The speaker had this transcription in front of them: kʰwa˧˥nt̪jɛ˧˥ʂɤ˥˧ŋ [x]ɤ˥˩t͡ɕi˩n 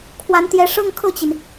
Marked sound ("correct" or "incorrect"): incorrect